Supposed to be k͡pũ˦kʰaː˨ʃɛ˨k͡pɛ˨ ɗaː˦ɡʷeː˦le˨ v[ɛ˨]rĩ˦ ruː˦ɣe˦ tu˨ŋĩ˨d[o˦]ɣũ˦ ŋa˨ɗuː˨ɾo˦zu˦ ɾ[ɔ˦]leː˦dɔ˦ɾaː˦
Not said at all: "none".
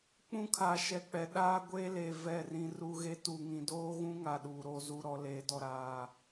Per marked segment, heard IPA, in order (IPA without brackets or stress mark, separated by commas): ɛ˦˨, oː˦, ɔ˦